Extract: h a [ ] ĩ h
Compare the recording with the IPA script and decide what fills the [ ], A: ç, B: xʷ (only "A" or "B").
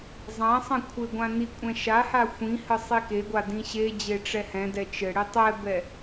B